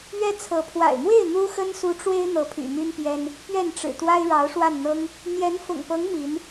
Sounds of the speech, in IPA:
ɥ ɛ˥ t͡sʰ ɤ˧˥ pʰ w a̰˨˩ ɪ̯ m w e˥˩ ɪ̯ n̪ u˥ x ə˥ n s u˧˥ ʈ͡ʂ w e˥ ɪ̯ n̪ ɤ˧˥ pʰ y̰˨˩ m y˥ n p j ɛ˥ n | p ɥ ɛ˥˩ n ʈ͡ʂ ɻ̩˨˩ t̪ w a˥ ɪ̯ ɻ ɑ˧˥ ʊ̯ ʂ w a˥˩ n n̪ ɤ˥ ŋ | n̪ j ɛ˧˥ n f ʊ̰˨˩ ŋ p ɤ˧˥ ŋ m i˧˥ n

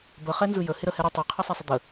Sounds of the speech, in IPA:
b ə χ ɛ n z ɯ j ə h ɪ ɾ ə h ɛ ɾ ɪ tˤ i qʰ ɯ sˤ ɛ sˤ ə d̪ ə

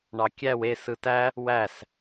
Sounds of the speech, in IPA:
ɳ ɑ kʲ æ w e s ɯ t æ | w æ s

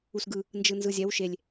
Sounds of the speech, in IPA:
u s ɡ ɯ | n d͡ʒ ɯ n z ɯ zʲ ɛ w ʃ e lʲ

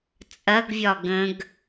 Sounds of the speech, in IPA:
t͡sʼ ɐ ɡ vʲ ɒ ɡ ə̃ ɡ

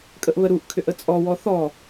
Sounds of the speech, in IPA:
kʼ ə ʔ β ə ɾ u ʔ kʰ ʏ ʔ ə t͡sʼ ɔ w ɔ θ ɔ

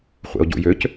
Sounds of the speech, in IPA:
χʷ ḛ o̯ ɟ ṵ j ø c

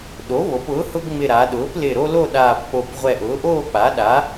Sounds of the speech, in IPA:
ɗ o˩˥ β o˩˧ p ʊː˩˥ h ʊ˦ ɡ ŋ͡m ɪ˧˩ ɾ a˩˧ ɗ ʊː˩˥ p l ɪ˧˩ ɾ o˦ l o˥˨ ɗ aː˧˩ p k͡p o˧˩ p ʁʷ ɛ˧˩ ʔ ʊː˩˥ ʔ oː˥˨ k͡p a˩˥ ɗ a˩˥

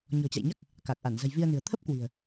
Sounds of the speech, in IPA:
ɲ ɔ̤˨˩ t͡ɕ a̰˧˨ j ɲ a˦˥ k̚ | k a˨˩ k̚ ʔ a˧˩ n z ə̤˨˩ j v i˧ ə̯ n ɨ̤˨˩ ə̯ t̪ʰ ə˦˥ p̚ k w i̤˨˩ ə̯

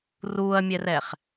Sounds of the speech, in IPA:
r uː ɐ̯ mʲ ɛ r ɛ χ

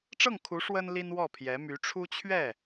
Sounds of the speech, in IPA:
ʈ͡ʂ ɤ˥˩ ŋ kʰ u˧˥ ʂ w ə˥ n l i˥ n w ɔ˥˩ pʰ j ɛ˧˥ m y˧˥ ʈ͡ʂʰ u˥ t͡ɕʰ ɥ ɛ˥˩

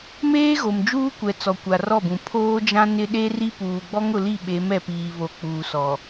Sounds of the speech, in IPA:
m eː˦ ɣ o˨ m d͡ʒ uː˦ kʷ ɛ˨ t͡s ɔ˨ kʷ a˨ r ɔ˦˨ b ũ˨ pʰ oː˦ d͡ʒ ã˦ n ɪ˦ ɗ e˦ r i˦ p uː˨ ɡ͡b ɔ˦ ŋ ʊ˨ l i˦˨ ɓ e˨˦ m ɛ˨ p iː˨ β o˨ k͡p uː˨ s ɔ˨

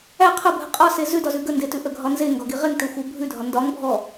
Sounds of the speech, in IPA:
æ qʰ ə bʱ ə qʼ ɒ s e z ʉ d ɒ z ʉ ɡ ə n d e t ʉ ʔ ə ɡʱ ɒ n z e ŋ ɡ ɒ ɡ i ʁ e ŋ t e xʷ ə w bʱ ʉ dʱ ɒ n d ɒ ŋ bʱ ɔ

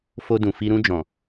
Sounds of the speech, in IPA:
f o˧ d ũ˨ f i˧ ɾ ũ˧ d͡ʒ ɔ̃˨

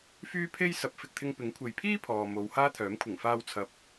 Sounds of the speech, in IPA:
f yː˥ pʰ e˥ j s ɐ˨˥ p̚ f ɪ˨ k̚ t̪ʰ ɪ˧ ŋ p ɪ˨˥ ŋ kʷʰ e˨ j pʰ iː˥ pʰ ɔː˨ m o˨˧ w h aː˥ t̪ʰ œː˨˥ m kʷʰ ɪ˨˩ ŋ f aː˧ w t͡sʰ ɐ˨˥ p̚

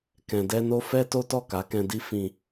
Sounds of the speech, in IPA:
k ɛ̃˨ d ɛ˧ n o˧ f ɛ˦ t o˦ t ɔ˦˨ k a˨˦ k ɛ̃˧ d i˦ f ĩ˧

